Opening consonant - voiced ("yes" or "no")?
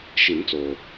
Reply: no